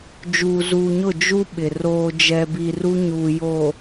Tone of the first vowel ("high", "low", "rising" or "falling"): low